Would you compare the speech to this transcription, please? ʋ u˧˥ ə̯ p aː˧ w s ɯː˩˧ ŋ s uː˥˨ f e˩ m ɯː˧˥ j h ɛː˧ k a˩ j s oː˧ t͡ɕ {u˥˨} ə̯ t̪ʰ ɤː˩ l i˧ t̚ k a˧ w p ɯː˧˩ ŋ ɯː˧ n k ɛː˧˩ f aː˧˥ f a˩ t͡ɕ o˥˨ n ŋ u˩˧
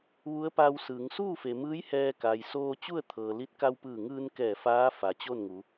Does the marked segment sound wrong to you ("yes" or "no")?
no